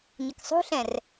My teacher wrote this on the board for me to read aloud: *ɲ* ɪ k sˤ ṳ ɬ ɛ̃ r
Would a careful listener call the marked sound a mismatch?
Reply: no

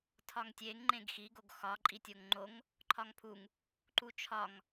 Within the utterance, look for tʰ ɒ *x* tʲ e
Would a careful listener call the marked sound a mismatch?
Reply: yes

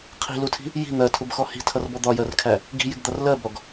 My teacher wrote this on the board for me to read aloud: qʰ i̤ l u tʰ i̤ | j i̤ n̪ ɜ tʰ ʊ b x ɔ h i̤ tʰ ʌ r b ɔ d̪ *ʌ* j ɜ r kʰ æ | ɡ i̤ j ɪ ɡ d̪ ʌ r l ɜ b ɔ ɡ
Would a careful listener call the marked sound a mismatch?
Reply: yes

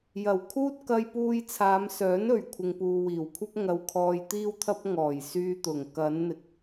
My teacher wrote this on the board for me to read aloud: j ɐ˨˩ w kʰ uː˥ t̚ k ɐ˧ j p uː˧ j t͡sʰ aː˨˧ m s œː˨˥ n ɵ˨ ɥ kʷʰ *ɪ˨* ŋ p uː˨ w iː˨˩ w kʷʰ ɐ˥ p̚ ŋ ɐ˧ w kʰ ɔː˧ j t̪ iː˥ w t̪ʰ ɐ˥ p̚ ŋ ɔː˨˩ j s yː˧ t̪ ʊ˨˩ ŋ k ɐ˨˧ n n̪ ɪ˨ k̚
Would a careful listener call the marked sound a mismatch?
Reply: no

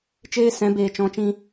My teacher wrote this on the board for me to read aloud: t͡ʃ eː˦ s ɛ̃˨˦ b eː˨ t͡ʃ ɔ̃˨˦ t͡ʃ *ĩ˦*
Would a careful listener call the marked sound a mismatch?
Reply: yes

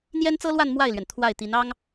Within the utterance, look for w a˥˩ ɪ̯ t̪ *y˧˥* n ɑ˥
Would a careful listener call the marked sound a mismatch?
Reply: yes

